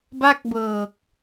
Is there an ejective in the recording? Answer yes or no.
no